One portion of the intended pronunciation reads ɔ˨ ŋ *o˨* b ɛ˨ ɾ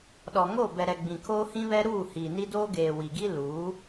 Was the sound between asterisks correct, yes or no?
no